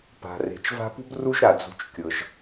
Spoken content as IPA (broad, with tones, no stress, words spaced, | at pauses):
pa̤˩re̤˩t͡ʃ va̤˦pṳ˥b ru˦ʒɾa˩d͡zṳ˨t͡ʃkʲɤ˩ʒ